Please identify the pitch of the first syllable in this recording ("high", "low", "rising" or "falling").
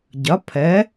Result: rising